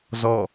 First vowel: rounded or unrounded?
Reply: rounded